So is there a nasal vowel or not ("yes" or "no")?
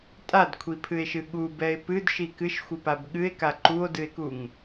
no